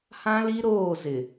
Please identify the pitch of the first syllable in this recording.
high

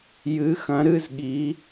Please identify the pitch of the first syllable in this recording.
rising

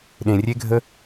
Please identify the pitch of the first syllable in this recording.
low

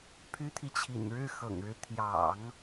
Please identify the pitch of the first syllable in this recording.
high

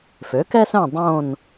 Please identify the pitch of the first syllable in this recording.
rising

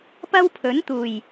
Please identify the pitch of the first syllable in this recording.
high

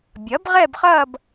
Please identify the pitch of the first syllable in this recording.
rising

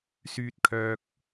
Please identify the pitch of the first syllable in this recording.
high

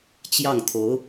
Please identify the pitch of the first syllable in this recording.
falling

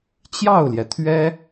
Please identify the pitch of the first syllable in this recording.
falling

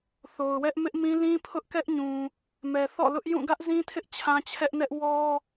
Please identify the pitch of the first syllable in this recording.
low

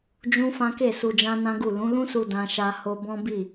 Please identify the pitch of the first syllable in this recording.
high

